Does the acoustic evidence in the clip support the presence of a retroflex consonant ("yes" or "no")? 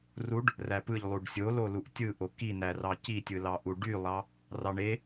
yes